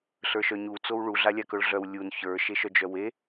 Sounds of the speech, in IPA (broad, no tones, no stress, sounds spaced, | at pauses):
ɬ ə˞ ʃ œ ɲ u t͡s o w ɭ u ɮ a lʲ a k œ ɭ ɮ œ w lʲ u n ç ə˞ ʃ e ʃ œ d͡ʒ œ w e